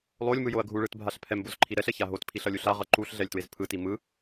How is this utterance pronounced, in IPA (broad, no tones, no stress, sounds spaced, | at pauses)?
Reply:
lˠ o lʲ m ɯ j o ɐ̯ ɡʱ u ɭ ɯ t bʱ a ɬ pʰ ɛ m b o z ǃʰ i ɾ ɛ ɬ ɛ ç a ɦ o t pʰ i ɬ ʌ lʲ u ɬ a ʁ ʌ ǃ u ɬ ɮ ɛ lʲ t w e z pʰ ɯ t i m ɯ